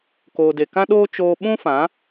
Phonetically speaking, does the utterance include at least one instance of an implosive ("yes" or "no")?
yes